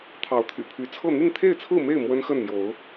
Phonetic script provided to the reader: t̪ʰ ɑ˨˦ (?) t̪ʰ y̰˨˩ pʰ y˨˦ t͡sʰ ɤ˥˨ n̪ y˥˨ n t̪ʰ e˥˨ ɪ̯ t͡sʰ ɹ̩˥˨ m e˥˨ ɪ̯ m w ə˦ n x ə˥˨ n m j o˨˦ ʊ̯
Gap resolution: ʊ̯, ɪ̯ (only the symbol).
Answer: ʊ̯